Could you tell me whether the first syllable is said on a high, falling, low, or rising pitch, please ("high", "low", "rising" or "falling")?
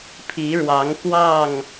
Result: rising